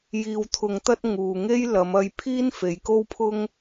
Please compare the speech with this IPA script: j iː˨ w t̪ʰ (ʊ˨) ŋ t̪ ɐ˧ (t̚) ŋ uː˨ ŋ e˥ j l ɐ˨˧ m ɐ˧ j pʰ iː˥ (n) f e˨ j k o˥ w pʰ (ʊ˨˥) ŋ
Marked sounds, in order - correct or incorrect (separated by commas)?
correct, correct, correct, incorrect